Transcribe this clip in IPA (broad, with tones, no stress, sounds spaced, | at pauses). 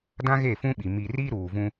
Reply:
d ã˦ ɣ e˦˨ f ũ˦ ɓ i˨ m i˨ r i˦ ɾ uː˨ v ũ˦